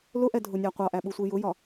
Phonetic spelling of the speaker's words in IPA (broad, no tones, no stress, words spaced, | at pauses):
lʊʔɛdʱʊnʲæ qʷɑʔæɓusʷi jʊjɒ